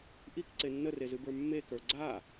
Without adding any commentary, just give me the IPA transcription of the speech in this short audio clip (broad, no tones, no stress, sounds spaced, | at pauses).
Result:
ʔ i k ǀ e nː ə r e z ɨ b ə˞ mː e k ə˞ ɡ͡ǀ a